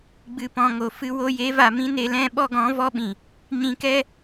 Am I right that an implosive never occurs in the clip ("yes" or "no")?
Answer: no